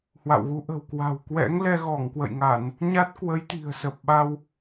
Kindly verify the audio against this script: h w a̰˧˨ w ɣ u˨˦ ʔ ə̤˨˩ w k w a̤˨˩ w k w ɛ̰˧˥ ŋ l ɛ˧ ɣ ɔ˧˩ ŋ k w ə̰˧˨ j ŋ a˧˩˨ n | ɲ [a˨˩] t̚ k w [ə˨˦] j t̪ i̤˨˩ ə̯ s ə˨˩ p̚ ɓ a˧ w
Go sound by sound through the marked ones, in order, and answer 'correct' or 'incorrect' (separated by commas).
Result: incorrect, correct